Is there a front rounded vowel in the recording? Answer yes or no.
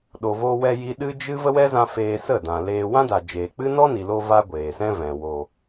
no